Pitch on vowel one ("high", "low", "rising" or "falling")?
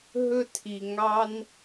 high